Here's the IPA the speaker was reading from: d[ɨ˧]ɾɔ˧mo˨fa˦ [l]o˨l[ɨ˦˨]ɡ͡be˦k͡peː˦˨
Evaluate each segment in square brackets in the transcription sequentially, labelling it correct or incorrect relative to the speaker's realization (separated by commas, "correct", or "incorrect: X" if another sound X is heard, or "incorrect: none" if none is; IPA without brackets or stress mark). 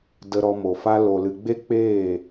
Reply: incorrect: ə˧, correct, incorrect: ɨ˨